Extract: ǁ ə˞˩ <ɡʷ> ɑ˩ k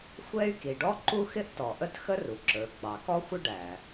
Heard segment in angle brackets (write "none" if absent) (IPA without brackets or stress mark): ɡ͡b